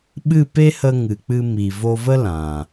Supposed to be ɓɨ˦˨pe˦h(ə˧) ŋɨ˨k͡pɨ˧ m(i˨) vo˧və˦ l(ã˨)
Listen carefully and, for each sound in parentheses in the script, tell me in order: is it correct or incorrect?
correct, correct, correct

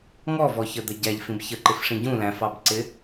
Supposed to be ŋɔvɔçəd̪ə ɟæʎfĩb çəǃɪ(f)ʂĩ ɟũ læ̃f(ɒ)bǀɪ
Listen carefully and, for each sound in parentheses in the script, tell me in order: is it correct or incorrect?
correct, incorrect

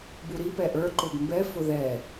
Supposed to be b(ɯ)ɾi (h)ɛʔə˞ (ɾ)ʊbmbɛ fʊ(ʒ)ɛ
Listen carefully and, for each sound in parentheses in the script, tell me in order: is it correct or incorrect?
incorrect, incorrect, incorrect, incorrect

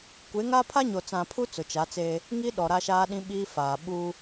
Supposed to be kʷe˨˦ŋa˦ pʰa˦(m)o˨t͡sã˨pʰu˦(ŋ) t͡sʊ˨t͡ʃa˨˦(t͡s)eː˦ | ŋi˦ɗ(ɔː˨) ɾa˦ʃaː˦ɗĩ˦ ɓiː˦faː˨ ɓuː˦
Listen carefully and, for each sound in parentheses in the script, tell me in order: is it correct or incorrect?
incorrect, incorrect, correct, incorrect

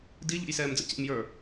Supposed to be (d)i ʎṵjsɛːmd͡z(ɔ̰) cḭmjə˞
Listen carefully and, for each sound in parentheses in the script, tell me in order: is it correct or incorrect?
correct, incorrect

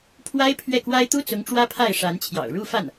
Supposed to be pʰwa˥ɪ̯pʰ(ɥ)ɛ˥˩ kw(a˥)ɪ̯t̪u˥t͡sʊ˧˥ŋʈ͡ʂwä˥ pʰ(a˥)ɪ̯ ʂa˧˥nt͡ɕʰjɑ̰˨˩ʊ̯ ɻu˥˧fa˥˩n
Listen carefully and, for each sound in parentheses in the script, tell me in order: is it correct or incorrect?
correct, correct, incorrect

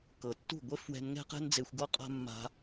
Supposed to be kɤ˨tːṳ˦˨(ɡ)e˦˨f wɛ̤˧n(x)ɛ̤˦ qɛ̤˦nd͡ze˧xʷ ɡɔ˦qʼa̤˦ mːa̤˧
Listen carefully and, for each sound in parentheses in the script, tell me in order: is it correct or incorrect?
incorrect, incorrect

